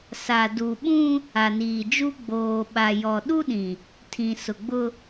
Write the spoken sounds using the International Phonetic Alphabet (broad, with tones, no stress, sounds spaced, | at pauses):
s a˨ d u˨ ɓ ũ˦ | a˨ n iː˨ d͡ʒ u˦ ɡ͡b oː˨ ɓ a˨ j ɔ˨ ɗ u˦ ɗ ĩ˨ | tʰ ĩ˨ s ʊ˨ ɡ͡b ʊ˦